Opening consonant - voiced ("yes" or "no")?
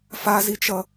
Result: no